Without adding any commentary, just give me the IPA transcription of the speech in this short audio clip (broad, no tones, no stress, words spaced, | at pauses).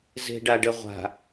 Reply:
ze̤ɖaɖə ʁʷa̤